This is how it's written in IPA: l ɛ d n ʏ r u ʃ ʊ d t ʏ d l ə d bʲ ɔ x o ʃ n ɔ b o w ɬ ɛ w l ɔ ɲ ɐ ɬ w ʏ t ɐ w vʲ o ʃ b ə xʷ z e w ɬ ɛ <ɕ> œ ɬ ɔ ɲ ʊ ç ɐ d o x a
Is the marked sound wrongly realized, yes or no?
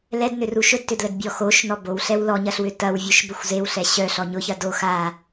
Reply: no